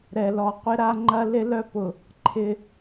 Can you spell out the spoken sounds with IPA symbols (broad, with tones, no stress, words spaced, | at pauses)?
ɾɛ˨lɔ˨qʷɪ˦ ɾa˦ŋ͡ǃɐ˦ lɪ˦lœ˦pʊ˨ | ǃʰɪ˦